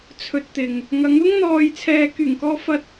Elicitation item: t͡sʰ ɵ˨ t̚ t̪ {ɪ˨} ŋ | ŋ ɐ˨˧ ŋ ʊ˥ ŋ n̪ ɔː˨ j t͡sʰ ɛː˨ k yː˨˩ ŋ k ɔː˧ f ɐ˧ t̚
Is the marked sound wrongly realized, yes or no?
no